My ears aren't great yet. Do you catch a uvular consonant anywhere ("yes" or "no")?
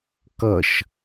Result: no